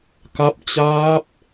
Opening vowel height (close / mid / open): open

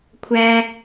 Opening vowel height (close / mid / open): open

